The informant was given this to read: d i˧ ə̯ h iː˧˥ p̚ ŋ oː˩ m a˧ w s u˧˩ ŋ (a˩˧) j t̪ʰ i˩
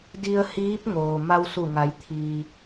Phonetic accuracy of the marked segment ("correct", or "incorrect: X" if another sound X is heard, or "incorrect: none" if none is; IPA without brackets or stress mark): correct